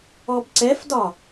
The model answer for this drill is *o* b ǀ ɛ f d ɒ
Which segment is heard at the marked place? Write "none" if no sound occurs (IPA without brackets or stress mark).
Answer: ɔ